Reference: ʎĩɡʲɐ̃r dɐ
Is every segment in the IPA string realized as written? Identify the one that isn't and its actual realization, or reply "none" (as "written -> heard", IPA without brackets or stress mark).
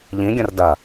none